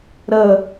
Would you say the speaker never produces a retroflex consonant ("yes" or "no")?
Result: yes